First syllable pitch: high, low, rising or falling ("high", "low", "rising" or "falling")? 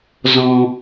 low